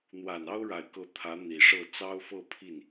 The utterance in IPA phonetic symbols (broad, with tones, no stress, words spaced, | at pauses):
n̪wa˨˩n ɑ˥ʊ̯ɻa˨˩ɪ̯kɤ˧˥ t̪ʰä˧˥n̪i˨˩ʂɤ˥˩ t͡sɑ˥ʊ̯fɤ˥˧pʰi˥˩n